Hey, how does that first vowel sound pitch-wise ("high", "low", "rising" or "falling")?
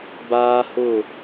high